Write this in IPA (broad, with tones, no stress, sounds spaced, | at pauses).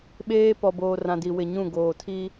ɓ eː˦ p ɔ˨ b oː˨ r ã˨ d i˨ w ɪ˨ ɲ ũ˦˨ ɡ oː˨ tʰ i˦